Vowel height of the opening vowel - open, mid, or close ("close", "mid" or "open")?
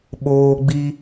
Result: mid